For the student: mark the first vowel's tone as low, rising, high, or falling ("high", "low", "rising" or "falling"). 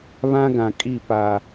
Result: high